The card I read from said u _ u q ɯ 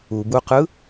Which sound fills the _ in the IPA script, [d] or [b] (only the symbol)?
b